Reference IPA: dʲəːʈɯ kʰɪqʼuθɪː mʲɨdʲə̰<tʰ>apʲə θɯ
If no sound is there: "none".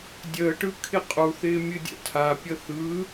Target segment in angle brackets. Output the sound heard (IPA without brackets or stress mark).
tʰ